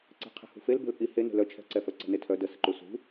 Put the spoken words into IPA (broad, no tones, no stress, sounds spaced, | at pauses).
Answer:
ǀ ɛ̤ qʰ ɛ̤ h ṳ f e l b ɛ̤ l pʼ i h e n e̤ l œ t͡ʃʰ ɛ̤ ǀ ɛ f œ ǀ ɛ̤ n e tʰ œ d ə s ə ǃ u s ṳ